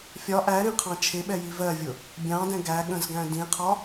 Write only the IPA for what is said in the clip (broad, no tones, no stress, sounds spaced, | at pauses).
fʲ ɒ ʔ æ ɾ ĩ qʰ ɑ̃ t͡ʃʰ ɪ ɓ ɛ j i v ɜ vʲ ʊ | bʲ ɑ̃ d ɛ̃ ɡ æ ɠ ə̃ z ɡ æ̃ d ĩ qʰ ɒ